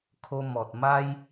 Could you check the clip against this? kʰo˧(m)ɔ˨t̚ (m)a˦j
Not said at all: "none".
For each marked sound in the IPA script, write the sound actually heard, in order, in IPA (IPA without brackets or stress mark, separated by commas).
m, m